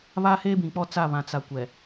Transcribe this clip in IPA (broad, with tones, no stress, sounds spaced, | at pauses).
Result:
β a˦ h eː˦ b ĩ˨ k͡p ɔ˦ t͡s a˦˨ β ã˨ t͡s a˨ kʷ ɛ˨